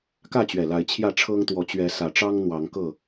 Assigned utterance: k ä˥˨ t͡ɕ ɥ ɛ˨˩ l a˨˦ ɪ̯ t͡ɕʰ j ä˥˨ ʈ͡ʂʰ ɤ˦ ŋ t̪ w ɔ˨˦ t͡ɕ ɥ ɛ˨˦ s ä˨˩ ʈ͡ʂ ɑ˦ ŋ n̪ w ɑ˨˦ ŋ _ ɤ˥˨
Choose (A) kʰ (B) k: B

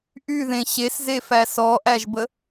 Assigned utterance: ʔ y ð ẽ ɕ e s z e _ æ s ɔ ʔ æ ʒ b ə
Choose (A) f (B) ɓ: A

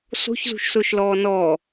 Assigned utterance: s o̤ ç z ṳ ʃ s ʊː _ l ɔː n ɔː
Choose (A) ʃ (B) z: A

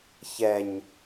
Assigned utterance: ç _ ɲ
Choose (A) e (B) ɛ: B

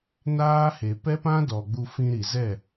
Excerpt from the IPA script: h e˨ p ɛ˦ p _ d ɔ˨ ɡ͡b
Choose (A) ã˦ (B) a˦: A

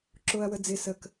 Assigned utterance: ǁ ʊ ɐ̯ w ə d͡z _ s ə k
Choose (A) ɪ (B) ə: A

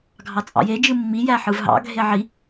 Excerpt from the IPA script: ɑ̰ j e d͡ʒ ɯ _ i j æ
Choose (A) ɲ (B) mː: B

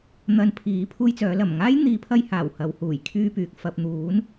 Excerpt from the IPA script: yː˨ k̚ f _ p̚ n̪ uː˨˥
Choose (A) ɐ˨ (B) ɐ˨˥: A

